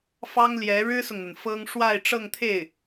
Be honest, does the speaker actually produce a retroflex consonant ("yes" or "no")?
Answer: yes